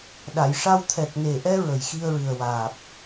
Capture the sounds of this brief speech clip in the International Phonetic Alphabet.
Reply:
ɗa˨˩˨jʂa˧w t̪ʰɛ˨˩k̚ne˨˩ʔɛ˧ ɹə˨˩jxi˧ə̯ɹɨ˨˩ə̯ waː˨˩p̚

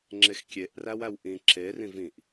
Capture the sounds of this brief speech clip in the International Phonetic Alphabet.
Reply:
ŋ͡ǁexkʲeʔ ræwæwʔĩ ǁe rĩvĩʔ

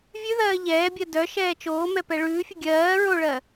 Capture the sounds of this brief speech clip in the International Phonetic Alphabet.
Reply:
vʲʉðɜː ʎɛːbʲɜ dœ ʃɛːt͡ʃoːmɛ pɛɭʉːfʲə ɡʲɜː ɹoɭɜ

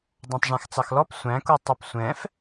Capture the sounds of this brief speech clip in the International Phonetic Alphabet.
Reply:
dˤɑ̃tˤʐæ̃xt͡sɑxlɔp sʷæ̃ku tˤɛpsʷɛ̃f

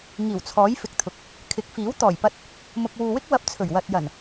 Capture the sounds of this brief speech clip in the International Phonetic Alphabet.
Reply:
ŋiː˨˩wt͡sʰɔː˨˥j fɪ˨k̚t̪ʰʊ˨k̚ | kʰɪ˨˥k̚fiː˨˥w t̪ɔː˨˩jpɐ˧t̚ | mʊ˨k̚wuː˨wɪ˥k̚ wɐ˧p̚t͡sʰɵ˨˩ɥwɐ˨t̚ jɐ˨˩n

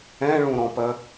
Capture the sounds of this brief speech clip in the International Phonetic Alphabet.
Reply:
ɛ̃ɭũɾɔ̃pɜ

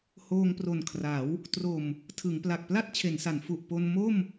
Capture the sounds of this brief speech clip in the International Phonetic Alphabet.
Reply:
hoː˧ŋpro˨˩nkʰra˩˦w | tro˨˩m | tʰɯ˩˦ŋpla˨˩k̚pla˥˩t̚ t͡ɕʰe˩˦nsa˩˦n fu˨˩ʔ po˧n mo˥˩m

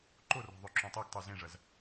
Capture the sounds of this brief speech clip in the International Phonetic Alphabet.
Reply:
ǃorɔ̤ ðˤøǁũtˤøɡtˤo zẽʐɐz

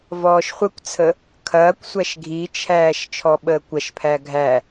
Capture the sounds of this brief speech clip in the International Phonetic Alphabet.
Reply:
vɔːʃχʷəkʷt͡sʰə | kʰɐːkʷsʷæʃ ɡʱit͡ʃʰæːʃ t͡ʃʰɔɓəːkʷɐʃpʰæ ɡʱæ

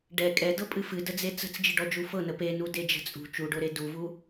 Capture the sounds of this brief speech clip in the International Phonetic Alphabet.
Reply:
ɖɛ kʼɛdɤpʼɨ fɨdəd͡ze t͡sə̤t͡sd͡ʒɨɖɔd͡ʒu fɤnə penuded͡ʒə̤ t͡sʼṳ t͡ʃuɖoɾe duvu

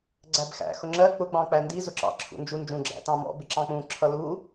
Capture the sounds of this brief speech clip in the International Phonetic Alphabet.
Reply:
ɡ͡ǀæbxæ̰ xʊŋ͡ǁɜ k͡pʊ ɡ͡bɑ̃k͡pændi zʊǁɑ̰ ǁʰṵnd͡ʒu nd͡ʒũ ɡ͡ǁæ̰tɑ̃mɔ̰ bɪǁɑ̃k͡pũ ǁʰʌlu

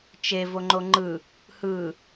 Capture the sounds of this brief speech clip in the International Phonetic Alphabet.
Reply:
t͡ʃe voŋ͡ǃoŋ͡ǃɯ | hɯ

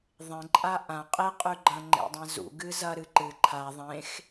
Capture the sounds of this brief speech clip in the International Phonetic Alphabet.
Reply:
ðˤẽǃʼa ʔã qʼe qʼʉɡ͡ǃɐ̃ ŋ͡ǃḛdˤãzṵ ɡɨzɐ ɾɨǃɨ ǃʰa ðˤẽx

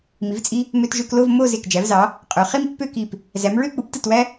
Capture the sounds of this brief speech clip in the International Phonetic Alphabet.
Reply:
mi˩˧vt͡sʼi˧ | mø˧t ʒø˧klo˥˧v mo˥˧ ze˧˩kd͡ʒæ˩˧vzɑ˩˧ | qʼø˩˧ χi˥mpːø˥˧ki˧˩p | zæ˩˧mɹø˥˧k͡pu˩˧p tɯ˧˩twæ˧

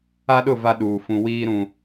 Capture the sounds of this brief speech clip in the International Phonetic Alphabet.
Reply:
a˦ɗʊ˦˨ va˦ɗuː˨fũ˨ wiː˦ɾũ˨

